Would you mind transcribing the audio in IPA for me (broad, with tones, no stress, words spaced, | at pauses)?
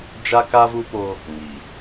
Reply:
d͡ʒa˦ka˦vu˦ poː˦ | ŋiː˨